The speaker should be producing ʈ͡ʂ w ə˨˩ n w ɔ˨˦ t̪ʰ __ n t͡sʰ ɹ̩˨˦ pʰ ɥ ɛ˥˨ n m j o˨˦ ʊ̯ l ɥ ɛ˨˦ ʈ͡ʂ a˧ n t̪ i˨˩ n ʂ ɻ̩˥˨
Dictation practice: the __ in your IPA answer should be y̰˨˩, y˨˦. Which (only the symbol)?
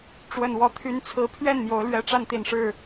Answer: y˨˦